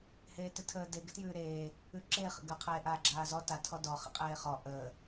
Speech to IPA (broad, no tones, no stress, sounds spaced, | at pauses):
h eː t ɪ tʰ əː d e ɡ ɪ t j ʉː ɾ eː | ʉ ǁ e χ ə̰ ɡ ə qʰ eː ʔ aː ɡ͡ǁ aː z ɔ t a tʰ ɔ d ɔ χ ə̰ qʼ eː χ ɔ ʔ əː